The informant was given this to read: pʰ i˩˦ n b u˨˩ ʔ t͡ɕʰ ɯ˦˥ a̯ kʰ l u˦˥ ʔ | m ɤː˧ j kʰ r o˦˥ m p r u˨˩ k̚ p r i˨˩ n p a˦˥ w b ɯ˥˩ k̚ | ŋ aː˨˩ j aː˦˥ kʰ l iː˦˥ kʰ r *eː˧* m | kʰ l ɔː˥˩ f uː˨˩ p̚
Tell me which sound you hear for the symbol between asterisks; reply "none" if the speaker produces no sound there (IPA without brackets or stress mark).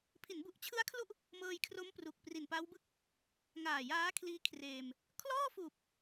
eː˧